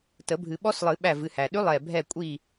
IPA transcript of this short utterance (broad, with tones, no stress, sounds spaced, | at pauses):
t ə˨˩˦ bʱ ɨ˨˩˦ ɓ ɔ˧˥ s lˠ ɨ˨˩˦ ɓ æ˧˩ v ɨ˧˩ h æ˩ ɗ ʉ˧˥ lˠ ɛ˧˩ bʱ ɛ˧˩ kʷʼ i˧˩